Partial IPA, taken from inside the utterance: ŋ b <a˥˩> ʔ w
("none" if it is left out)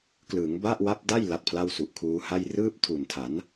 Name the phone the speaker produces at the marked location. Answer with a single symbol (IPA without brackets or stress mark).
a˥˩